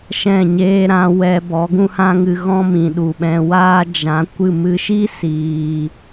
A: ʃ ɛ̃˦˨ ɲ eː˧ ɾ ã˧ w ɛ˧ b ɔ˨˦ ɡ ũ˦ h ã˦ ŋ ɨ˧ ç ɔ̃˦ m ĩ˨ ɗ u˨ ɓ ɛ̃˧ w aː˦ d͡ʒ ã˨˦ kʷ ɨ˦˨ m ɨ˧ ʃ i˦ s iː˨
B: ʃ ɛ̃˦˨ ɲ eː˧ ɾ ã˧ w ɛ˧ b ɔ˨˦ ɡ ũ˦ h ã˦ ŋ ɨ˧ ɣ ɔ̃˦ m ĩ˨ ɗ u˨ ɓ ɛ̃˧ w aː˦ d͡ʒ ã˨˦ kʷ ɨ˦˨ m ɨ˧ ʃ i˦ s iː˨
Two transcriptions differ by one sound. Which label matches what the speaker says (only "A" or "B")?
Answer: B